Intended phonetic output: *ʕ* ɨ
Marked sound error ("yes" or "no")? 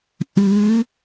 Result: yes